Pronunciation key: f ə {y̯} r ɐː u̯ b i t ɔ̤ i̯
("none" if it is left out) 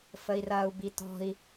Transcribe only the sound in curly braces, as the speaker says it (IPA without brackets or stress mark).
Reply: i̯